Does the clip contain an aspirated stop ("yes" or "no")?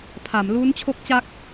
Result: yes